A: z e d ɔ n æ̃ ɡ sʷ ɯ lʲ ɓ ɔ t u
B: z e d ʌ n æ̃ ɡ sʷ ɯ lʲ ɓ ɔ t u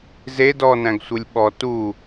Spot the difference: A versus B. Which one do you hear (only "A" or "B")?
A